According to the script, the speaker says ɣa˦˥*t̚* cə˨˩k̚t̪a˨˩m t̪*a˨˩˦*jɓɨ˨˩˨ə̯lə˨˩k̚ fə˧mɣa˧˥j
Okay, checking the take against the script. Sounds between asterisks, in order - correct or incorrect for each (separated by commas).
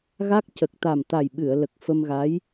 incorrect, incorrect